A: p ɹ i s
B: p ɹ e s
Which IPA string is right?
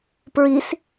A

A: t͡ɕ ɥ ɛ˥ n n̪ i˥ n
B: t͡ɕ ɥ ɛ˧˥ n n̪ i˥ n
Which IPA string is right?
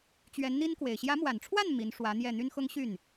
B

